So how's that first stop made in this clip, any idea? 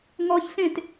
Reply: plain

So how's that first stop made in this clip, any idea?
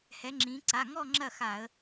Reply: click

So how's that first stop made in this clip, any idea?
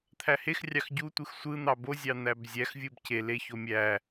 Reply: aspirated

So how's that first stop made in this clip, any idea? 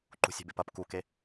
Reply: click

